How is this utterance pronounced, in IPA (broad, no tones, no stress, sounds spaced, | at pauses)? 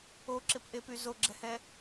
o ǁ ɪ p ʔ e p y z o ɡ͡ǁ ɛ h ɛ